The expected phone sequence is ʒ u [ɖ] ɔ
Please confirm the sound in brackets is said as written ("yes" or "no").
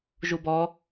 no